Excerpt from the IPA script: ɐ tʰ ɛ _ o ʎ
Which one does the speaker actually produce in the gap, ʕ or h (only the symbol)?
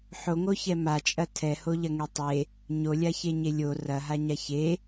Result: h